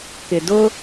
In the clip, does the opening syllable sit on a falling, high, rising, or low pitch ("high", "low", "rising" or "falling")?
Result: low